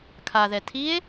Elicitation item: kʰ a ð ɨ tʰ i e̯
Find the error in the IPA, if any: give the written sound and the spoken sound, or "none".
ɨ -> ɛ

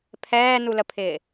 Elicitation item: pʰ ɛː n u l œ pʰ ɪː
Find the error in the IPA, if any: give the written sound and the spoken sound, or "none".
œ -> ə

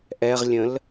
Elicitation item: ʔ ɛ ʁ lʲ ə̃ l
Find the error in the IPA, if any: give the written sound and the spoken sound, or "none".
none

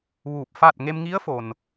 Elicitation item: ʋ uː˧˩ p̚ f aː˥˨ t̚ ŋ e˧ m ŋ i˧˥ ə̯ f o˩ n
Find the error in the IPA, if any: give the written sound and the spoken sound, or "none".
none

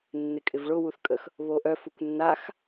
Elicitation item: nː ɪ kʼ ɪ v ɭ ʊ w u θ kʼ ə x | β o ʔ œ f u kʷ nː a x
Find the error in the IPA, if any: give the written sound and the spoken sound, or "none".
none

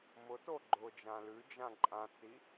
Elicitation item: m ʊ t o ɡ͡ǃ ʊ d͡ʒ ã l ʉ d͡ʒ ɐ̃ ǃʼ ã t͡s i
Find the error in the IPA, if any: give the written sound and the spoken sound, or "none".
ɐ̃ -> ã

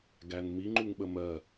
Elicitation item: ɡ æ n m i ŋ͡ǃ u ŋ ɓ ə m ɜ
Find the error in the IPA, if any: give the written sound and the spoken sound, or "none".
none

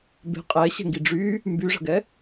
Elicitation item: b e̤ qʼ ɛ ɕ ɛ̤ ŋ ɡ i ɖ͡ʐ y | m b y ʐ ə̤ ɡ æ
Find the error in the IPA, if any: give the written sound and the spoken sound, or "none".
æ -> ɛ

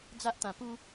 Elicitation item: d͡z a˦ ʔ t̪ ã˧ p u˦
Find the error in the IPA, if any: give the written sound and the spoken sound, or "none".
none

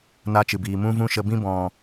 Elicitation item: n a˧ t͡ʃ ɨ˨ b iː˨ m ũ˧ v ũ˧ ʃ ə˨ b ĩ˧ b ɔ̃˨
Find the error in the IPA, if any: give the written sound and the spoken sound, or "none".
none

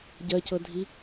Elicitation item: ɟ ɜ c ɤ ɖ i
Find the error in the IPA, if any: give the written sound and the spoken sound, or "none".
ɖ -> dʱ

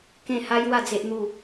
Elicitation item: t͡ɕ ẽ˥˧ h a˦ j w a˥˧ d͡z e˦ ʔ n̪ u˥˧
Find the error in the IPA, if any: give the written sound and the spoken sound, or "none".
t͡ɕ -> k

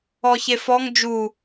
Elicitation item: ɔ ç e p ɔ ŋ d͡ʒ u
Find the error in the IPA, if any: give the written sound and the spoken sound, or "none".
p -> f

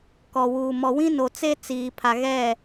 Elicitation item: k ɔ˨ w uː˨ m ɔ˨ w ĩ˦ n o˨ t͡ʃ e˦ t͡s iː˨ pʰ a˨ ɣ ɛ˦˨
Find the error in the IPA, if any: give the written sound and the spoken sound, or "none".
t͡ʃ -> t͡s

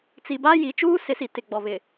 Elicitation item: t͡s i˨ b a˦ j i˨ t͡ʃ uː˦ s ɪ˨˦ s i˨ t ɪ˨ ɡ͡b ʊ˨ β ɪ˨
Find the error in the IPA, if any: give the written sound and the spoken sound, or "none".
ʊ˨ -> ɔ˨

